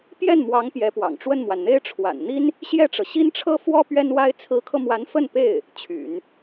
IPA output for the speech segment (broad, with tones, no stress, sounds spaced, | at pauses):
p j ɛ˥˩ n m w ɑ˧˥ ŋ p j ɛ˧˥ p w ɑ̰˨˩ ŋ ʈ͡ʂ w ə˥˩ n m w a˩ n n̪ e˥ ɪ̯ ʈ͡ʂʰ w a̰˨˩ n n̪ i˥ n | ɕ j ɛ˥˩ ʈ͡ʂ ɤ˩ ɕ i˥ n ʈ͡ʂʰ ɤ˥ f w ɔ˥ p ɥ ɛ˥ n w a˥ ɪ̯ t͡sʰ ɹ̩˧˥ kʰ ɤ˧ m w a˧˥ n f ə˥˧ n p e˥˩ ɪ̯ | t͡ɕʰ y̰˨˩˦ n